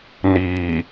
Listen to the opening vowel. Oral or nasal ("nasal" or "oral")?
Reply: oral